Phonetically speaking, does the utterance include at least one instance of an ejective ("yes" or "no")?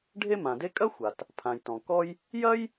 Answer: yes